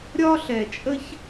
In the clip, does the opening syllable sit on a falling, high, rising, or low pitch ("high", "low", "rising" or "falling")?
high